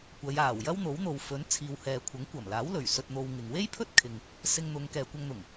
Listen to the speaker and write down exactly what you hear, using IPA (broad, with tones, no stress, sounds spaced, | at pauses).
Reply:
kʷ ɐ˨˧ j aː˨˩ w j ɐ˥ w n̪ o˨˥ w n̪ o˨ w f ɵ˨˥ n t͡sʰ iː˨ w h ɛː˨ kʷʰ ɐ˨˥ ŋ kʷ ɐ˨˩ m l aː˨˥ w l ɵ˨˩ ɥ s ɵ˧ t̚ n̪ o˧ w ŋ ɪ˨ ŋ w e˥ j pʰ ɵ˥ t̚ kʰ ɪ˨ ŋ | s ɪ˧ ŋ n̪ ʊ˨˧ ŋ k ɛː˨ kʷ ɐ˧ ŋ n̪ ʊ˨˩ ŋ